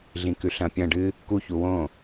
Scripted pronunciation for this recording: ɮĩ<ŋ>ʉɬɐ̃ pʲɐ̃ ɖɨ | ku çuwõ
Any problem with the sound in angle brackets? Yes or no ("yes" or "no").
yes